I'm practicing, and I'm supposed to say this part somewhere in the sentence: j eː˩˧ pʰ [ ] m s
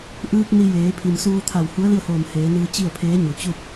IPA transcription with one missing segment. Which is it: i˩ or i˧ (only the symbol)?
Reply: i˩